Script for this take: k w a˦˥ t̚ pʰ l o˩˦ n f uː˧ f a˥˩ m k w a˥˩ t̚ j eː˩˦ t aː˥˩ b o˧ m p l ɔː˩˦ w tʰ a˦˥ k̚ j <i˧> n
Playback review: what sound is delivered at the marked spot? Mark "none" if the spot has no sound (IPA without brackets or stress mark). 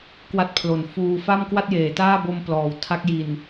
i˨˩